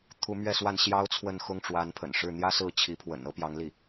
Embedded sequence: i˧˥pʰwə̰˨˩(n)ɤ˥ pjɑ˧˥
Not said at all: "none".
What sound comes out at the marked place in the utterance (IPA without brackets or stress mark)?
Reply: n